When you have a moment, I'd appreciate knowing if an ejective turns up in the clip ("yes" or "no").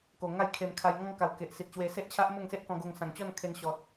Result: no